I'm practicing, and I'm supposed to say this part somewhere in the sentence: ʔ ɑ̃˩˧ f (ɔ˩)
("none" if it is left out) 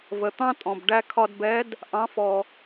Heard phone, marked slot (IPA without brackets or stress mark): ɔ˩